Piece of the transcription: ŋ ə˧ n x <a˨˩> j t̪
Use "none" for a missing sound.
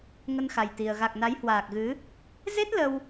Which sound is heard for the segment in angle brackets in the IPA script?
a˨˩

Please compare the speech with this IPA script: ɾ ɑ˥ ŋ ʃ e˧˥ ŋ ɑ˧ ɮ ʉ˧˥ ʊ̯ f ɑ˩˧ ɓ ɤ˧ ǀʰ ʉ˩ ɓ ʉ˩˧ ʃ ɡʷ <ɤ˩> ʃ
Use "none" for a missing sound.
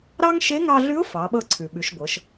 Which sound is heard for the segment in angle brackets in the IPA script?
ɤ˩˧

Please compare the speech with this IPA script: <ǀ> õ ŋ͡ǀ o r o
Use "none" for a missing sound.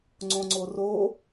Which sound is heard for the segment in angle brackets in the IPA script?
ŋ͡ǀ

